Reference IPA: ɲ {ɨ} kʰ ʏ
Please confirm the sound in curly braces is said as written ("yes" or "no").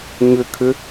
no